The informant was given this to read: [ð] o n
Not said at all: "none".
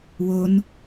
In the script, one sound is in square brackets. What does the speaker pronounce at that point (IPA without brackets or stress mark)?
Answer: w